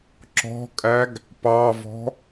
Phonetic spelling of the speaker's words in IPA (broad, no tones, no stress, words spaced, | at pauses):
ǁɔ̤kʼæɡ | pɑvɔ̤